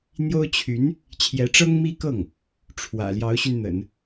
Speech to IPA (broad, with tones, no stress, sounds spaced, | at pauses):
n̪ j o˥ ʊ̯ t͡ɕʰ y˧˥ n | t͡ɕʰ j ɛ˧˥ ʈ͡ʂ ɤ˥ ŋ m i˥ k ɤ˥˩ ŋ | ʈ͡ʂʰ w ä̰˨˩ l j ɑ˧˥ ʊ̯ ɕ y˧ n n̪ ə̰˨˩˦ n